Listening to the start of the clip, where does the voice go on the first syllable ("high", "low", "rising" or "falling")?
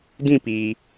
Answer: falling